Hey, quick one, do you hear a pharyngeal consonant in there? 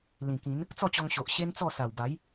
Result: no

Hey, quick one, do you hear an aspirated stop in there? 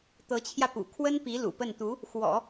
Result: yes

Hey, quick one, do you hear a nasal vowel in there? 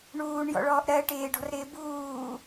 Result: no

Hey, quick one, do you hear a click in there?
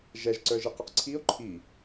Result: yes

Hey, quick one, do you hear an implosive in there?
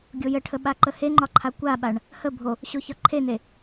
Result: yes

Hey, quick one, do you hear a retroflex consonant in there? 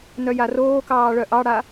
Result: yes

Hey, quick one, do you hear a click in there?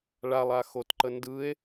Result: yes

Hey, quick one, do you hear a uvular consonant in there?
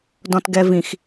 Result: no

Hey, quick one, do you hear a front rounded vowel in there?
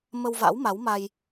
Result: no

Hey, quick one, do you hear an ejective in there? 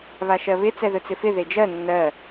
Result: no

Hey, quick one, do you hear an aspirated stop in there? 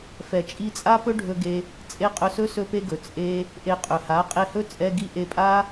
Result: no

